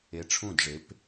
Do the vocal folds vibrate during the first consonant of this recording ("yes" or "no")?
no